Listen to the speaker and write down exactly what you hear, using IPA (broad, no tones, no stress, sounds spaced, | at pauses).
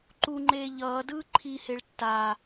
ǃ u ŋ͡ǃ eː ʎ ʌː d ɯː ǃʰ i h e ɭ tː a